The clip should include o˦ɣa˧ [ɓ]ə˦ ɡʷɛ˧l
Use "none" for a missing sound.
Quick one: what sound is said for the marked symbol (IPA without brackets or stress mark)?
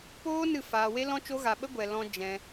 ɓ